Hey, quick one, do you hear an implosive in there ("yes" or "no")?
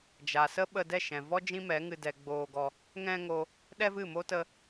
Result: yes